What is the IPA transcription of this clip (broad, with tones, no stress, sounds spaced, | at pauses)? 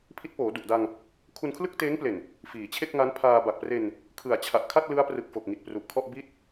pʰ i˦˥ t̚ p oː˩˦ d u˨˩ ʔ d a˧ ŋ | kʰ u˧ n kʰ l ɯ˥˩ k̚ t eː˦˥ ŋ p l e˨˩ n | f iː˨˩ t͡ɕʰ e˥˩ k̚ ŋ a˦˥ n pʰ aː˧ b a˨˩ k̚ p r e˧ n | kʰ ɯ˨˩ a̯ t͡ɕʰ a˨˩ ʔ kʰ a˥˩ t̚ l ɯ˦˥ a̯ p r ɯ˨˩ k̚ f o˨˩ k̚ ŋ i˨˩ t̚ p r u˨˩ ʔ kʰ ɔ˥˩ ʔ b i˥˩ t̚